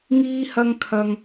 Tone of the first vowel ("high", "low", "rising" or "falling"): high